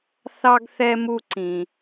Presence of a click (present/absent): present